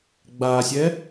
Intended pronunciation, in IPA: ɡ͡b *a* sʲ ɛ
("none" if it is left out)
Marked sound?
a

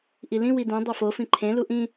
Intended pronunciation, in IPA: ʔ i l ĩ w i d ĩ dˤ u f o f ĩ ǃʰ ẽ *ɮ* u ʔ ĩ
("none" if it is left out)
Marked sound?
l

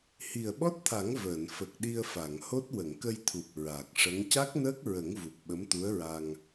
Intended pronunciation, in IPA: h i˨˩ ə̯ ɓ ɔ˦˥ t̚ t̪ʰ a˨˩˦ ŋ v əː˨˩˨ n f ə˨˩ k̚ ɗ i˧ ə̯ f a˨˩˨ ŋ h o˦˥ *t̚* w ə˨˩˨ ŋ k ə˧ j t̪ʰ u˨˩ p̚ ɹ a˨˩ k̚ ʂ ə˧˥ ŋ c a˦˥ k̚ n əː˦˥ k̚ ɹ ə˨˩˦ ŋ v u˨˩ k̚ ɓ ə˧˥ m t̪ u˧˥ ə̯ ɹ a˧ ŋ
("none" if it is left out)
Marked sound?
t̚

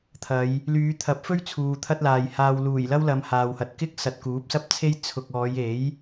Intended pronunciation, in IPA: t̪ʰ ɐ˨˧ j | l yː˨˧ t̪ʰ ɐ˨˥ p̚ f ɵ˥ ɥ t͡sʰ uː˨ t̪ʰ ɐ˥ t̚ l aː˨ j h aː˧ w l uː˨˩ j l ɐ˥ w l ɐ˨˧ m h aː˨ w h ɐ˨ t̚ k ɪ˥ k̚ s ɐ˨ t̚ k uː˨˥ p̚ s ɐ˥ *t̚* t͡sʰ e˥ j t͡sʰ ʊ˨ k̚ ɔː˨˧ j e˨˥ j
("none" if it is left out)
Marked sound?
p̚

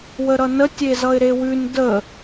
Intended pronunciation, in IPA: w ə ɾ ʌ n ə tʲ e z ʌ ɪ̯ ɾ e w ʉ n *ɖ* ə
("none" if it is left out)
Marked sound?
d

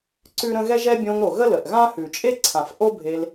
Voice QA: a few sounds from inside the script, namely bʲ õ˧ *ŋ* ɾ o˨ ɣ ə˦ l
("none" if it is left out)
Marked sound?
ŋ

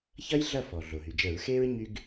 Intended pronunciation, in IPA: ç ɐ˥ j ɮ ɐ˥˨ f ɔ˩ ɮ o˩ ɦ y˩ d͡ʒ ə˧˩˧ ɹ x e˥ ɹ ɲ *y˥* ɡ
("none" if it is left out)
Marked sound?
y˥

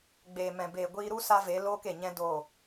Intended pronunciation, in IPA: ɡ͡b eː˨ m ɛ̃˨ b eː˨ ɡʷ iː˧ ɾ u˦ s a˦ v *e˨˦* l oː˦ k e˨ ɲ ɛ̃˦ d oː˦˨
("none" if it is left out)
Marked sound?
e˨˦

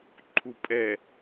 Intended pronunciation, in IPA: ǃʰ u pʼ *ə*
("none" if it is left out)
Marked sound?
ɛ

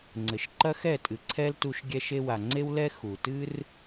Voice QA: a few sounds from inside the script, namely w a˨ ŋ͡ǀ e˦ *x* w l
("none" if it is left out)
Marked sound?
none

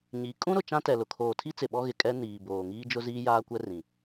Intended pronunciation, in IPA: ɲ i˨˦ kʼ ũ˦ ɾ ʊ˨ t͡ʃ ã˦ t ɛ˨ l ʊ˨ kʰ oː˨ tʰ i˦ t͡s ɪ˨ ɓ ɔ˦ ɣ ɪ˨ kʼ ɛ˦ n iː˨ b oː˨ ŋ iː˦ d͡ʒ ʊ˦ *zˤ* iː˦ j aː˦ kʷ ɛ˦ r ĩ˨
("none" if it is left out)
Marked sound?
z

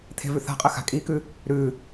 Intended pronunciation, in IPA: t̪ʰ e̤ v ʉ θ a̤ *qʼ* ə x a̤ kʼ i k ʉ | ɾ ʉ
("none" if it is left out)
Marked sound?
qʼ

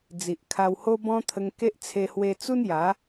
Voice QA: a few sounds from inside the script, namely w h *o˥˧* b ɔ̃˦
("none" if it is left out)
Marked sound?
o˦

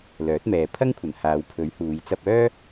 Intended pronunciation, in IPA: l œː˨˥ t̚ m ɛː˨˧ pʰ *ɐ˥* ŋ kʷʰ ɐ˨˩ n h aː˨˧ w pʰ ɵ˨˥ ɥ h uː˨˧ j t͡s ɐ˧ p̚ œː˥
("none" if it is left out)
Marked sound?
ɐ˥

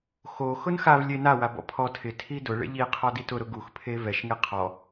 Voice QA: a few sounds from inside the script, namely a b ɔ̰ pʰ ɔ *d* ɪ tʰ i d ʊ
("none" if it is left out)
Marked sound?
tʰ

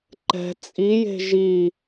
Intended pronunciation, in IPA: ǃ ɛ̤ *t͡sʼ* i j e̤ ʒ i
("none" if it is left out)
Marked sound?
t͡sʼ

